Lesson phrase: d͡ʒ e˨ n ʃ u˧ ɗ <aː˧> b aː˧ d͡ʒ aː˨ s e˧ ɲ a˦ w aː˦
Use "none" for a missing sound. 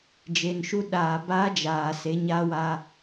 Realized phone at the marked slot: aː˨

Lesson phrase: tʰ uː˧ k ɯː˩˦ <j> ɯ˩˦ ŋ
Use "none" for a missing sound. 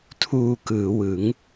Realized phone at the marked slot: w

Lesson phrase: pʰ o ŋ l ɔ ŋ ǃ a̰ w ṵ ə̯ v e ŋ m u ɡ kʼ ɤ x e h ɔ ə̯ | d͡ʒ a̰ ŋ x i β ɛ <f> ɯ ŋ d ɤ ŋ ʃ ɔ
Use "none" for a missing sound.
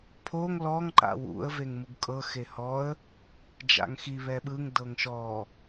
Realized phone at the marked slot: ɓ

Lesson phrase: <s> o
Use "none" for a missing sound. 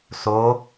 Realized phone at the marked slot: s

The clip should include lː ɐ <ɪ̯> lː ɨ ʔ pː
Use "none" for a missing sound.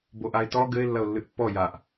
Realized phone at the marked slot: ʊ̯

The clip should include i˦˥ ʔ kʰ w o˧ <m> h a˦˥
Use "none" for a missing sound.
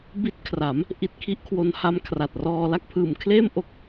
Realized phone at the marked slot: n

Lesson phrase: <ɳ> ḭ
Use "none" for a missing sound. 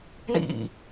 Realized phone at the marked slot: ɳ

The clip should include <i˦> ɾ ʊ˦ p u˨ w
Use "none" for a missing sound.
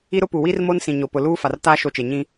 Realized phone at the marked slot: i˦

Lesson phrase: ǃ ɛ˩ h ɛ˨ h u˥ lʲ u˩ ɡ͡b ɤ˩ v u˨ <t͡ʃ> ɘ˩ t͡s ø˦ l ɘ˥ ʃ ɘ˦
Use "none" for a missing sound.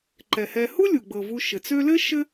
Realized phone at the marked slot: ʃ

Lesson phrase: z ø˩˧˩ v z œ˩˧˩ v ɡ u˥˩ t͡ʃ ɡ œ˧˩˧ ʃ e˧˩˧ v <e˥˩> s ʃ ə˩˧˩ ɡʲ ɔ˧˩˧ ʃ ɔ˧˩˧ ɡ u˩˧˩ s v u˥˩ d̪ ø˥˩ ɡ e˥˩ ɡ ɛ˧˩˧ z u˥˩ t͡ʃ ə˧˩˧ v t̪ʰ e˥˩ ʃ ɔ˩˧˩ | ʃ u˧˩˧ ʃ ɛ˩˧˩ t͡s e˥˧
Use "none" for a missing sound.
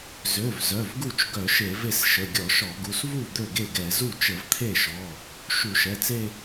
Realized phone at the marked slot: e˥˩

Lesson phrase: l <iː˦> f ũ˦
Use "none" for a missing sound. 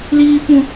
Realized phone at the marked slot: iː˦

